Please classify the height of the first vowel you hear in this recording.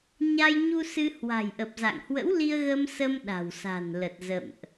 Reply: low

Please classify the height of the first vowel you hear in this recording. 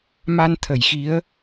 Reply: low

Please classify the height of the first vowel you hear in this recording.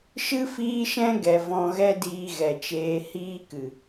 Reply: high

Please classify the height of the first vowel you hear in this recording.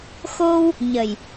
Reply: mid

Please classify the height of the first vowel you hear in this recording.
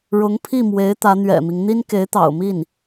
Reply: high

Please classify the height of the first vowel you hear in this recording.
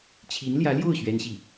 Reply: high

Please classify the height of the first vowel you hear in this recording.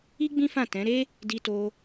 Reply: high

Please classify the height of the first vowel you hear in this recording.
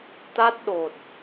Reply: low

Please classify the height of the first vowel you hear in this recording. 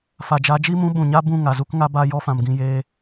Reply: low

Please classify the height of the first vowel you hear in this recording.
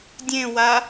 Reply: mid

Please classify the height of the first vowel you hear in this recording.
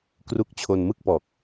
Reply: high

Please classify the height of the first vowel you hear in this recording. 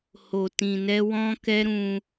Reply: mid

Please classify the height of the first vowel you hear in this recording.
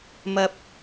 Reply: low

